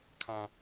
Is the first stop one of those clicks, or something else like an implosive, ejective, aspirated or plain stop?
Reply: aspirated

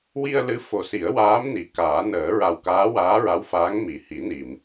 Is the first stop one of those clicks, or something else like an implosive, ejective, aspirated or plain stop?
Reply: plain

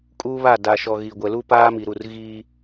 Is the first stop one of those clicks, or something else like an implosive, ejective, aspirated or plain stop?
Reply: ejective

